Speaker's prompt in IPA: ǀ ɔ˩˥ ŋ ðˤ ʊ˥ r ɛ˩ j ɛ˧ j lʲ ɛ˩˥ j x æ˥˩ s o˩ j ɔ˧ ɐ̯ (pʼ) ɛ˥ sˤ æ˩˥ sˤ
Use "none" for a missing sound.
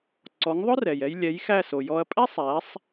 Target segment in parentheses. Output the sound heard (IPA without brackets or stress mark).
pʼ